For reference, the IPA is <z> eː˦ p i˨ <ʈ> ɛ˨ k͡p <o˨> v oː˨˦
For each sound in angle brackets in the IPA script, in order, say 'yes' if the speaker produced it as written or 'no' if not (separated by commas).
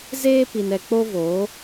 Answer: yes, no, no